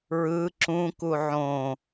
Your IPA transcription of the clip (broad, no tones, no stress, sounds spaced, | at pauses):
ɹ ɯ ǁ ũ k u ʕ õ